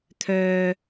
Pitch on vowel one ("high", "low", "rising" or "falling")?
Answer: low